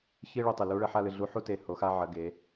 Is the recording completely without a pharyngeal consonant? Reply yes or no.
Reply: no